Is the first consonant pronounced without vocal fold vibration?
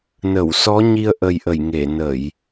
no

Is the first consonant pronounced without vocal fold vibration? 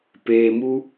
yes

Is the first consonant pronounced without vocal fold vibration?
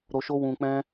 no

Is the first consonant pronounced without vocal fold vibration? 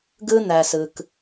no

